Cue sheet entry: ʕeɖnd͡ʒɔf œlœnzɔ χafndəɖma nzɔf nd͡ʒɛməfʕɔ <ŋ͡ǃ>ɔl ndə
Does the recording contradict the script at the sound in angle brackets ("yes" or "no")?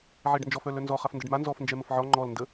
no